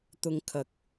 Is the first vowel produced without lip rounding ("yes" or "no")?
no